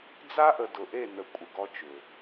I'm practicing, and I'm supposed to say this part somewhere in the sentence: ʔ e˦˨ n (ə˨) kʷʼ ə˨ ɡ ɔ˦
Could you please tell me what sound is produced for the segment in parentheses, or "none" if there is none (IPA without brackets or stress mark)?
ə˨